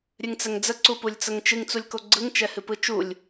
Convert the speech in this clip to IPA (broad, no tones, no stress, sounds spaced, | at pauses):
ɾʲ ɨ ŋ t͡s ɛ ŋ d͡z ə ǀ u p u lʲ t͡s ə ŋ t͡ʃ ɨ ŋ t͡s u lʲ k o ɡ͡ǀ ɯ ŋ t͡ʃ ɛ h ɨ p ɯ t͡ʃ u lʲ